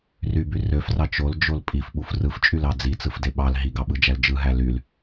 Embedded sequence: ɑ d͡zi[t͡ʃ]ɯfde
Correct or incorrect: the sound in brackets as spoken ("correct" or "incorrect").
incorrect